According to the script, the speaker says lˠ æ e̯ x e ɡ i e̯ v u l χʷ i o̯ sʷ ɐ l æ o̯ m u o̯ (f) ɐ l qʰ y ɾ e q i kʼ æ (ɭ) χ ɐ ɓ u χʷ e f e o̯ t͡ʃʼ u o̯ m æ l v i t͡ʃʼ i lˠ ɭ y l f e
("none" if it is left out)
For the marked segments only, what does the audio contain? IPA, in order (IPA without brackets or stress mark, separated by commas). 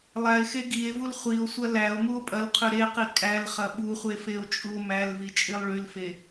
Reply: pʼ, l